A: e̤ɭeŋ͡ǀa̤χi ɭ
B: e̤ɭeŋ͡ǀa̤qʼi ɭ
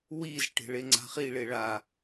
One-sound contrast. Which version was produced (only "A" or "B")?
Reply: A